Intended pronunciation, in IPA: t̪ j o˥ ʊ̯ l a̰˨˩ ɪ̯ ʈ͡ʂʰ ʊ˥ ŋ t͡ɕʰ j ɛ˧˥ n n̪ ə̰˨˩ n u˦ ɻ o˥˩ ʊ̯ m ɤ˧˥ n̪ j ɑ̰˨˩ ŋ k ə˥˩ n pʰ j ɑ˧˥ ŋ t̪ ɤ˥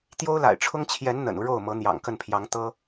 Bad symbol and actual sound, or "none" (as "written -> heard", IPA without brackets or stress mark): none